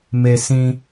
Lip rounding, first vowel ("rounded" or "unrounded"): unrounded